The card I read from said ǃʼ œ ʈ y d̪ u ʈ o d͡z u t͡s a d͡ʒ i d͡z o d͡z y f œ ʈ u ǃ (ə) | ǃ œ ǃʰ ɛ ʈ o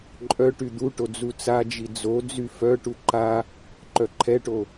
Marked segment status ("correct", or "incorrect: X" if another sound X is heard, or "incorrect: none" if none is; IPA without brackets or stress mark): incorrect: a